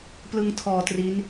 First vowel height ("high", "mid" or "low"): high